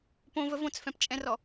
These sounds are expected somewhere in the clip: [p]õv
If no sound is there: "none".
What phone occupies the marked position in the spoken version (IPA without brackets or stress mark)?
p